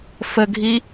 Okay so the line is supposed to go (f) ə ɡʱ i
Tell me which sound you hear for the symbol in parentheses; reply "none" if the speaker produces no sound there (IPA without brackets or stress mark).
f